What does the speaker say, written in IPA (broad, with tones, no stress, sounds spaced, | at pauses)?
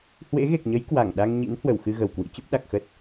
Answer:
h w ḛ˧˥ ɣ e˨˩ k̚ ɲ ə˨˦ j k w a˧˩ ŋ ɗ a˧ ŋ ɲ ḭ˧˥ n h w ə˧˩ w x ɨ˧ ɣ ə˨˩ w k w ḭ˧˥ t͡ɕ ə˦˥ p̚ ɗ a˨˩ k̚ x ə˦˥ t̚